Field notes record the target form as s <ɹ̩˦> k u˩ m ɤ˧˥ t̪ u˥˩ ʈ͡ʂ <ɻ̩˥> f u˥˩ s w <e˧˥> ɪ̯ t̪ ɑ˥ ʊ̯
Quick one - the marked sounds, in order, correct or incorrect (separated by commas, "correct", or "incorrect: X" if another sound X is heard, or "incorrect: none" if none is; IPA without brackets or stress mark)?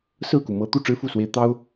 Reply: incorrect: ɹ̩˥˩, correct, correct